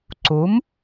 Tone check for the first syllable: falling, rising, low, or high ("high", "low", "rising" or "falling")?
rising